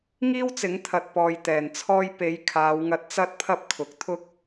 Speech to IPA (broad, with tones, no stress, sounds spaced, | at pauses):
ŋ iː˥ w t͡s ɪ˨˥ ŋ t̪ʰ ɐ˧ t̚ p ɔː˨ j t̪ ɛː˨˩ n t͡sʰ ɔː˥ j p e˨˧ j kʰ aː˨˧ w ŋ ɐ˧ t̚ t͡s ɐ˥ t̚ pʰ ɐ˥ p̚ kʰ ʊ˨˥ k̚ t̪ʰ ʊ˥ k̚